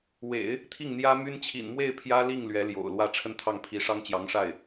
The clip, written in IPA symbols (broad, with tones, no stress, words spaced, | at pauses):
wḛ˨˩˦ɪ̯ | t̪ʰi˥˩ŋn̪jä˥my˥n t͡ɕʰḭ˨˩nmwe˥˩ɪ̯ pʰjä˥li˥˩ŋ lɥɛ˧˥ljo̰˨˩ʊ̯lwä˥˧ ʈ͡ʂʰə˥˧nt̪ʰɑ˥˩ŋpʰi˧˥ ʂɑ˥ŋt͡ɕjɑ˧˥ŋʂa˥˩ɪ̯